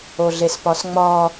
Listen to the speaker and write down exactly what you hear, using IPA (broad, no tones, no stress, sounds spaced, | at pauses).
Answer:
o ɮ e s p ɒ s ŋ͡m ɒ